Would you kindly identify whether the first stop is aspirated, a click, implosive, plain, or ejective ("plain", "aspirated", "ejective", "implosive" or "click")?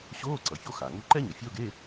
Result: click